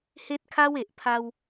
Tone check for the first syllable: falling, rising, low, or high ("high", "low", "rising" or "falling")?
high